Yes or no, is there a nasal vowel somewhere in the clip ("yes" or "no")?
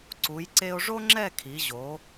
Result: no